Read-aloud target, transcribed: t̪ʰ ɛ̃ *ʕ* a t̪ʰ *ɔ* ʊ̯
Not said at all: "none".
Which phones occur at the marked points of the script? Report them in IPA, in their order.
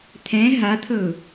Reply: ɦ, ɤ

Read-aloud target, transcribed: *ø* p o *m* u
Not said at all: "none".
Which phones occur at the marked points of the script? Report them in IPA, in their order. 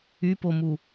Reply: y, m

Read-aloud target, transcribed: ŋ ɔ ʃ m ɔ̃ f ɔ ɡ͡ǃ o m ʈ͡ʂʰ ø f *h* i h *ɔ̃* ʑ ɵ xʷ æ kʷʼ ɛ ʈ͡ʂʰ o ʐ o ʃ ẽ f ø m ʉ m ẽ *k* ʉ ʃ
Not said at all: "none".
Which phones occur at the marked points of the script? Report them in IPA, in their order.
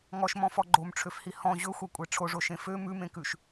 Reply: h, ɔ̃, k

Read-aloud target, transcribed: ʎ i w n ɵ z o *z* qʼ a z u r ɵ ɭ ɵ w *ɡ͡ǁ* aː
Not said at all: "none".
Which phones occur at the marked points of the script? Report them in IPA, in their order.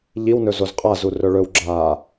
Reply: z, ɡ͡ǁ

